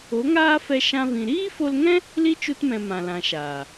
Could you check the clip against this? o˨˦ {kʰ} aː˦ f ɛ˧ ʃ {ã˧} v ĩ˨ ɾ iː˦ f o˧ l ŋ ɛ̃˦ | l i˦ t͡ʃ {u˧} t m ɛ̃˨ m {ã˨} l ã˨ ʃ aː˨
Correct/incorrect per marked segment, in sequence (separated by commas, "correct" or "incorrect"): incorrect, correct, correct, correct